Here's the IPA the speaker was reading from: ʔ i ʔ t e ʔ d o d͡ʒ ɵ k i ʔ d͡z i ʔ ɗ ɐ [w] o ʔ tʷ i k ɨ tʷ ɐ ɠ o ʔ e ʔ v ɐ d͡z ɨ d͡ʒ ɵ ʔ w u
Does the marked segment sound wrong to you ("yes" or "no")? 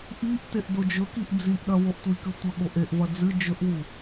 no